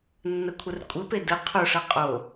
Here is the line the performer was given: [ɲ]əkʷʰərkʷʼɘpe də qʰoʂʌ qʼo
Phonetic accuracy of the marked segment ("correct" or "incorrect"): incorrect